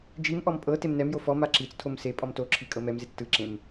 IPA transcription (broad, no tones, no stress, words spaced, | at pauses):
d͡ʒimʔɔm pʼɤ temnɛmjo fɔ maǁit͡stʰom se pʼɔmtoǁʰi kʼɤmɛmzet͡s tɯǁẽm